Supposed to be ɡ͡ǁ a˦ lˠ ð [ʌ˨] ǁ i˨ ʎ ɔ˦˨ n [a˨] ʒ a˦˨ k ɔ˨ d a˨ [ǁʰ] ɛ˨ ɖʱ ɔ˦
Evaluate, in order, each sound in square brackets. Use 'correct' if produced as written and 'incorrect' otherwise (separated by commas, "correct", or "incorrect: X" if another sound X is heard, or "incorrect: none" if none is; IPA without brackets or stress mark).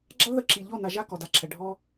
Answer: incorrect: ə˨, correct, correct